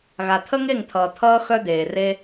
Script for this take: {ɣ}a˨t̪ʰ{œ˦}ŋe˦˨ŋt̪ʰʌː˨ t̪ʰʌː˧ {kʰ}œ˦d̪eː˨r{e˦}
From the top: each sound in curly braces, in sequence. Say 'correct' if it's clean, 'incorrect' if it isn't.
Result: correct, incorrect, incorrect, correct

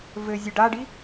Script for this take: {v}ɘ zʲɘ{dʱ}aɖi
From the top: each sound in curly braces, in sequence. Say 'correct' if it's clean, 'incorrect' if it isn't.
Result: correct, incorrect

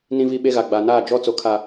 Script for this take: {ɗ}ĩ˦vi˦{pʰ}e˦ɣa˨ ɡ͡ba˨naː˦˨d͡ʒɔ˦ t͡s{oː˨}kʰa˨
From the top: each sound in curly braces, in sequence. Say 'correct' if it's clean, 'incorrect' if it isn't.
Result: incorrect, incorrect, incorrect

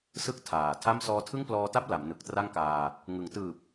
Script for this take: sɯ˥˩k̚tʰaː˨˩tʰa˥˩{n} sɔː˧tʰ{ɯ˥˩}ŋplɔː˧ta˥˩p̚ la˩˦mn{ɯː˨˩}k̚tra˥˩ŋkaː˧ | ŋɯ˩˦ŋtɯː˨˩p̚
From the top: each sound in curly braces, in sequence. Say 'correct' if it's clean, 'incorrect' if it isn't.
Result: incorrect, correct, incorrect

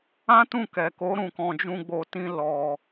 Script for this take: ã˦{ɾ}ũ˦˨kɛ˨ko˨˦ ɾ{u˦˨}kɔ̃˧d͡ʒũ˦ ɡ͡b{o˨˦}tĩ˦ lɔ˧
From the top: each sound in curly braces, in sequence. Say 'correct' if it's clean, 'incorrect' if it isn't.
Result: incorrect, incorrect, incorrect

